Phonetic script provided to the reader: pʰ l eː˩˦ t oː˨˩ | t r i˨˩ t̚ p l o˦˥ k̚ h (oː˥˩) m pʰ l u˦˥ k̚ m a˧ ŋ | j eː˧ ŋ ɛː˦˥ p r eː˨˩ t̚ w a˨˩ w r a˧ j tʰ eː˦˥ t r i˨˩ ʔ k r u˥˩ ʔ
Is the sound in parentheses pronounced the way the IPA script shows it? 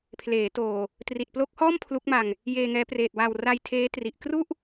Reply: no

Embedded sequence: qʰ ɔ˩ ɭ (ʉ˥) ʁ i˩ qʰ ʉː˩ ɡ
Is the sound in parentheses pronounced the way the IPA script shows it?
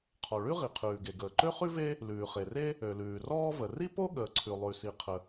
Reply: yes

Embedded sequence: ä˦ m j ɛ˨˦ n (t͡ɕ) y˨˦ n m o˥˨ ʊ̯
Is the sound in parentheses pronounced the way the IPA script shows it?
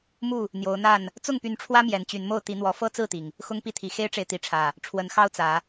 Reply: yes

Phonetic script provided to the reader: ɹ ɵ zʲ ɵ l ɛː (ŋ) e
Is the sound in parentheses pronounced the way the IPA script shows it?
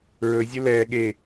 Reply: no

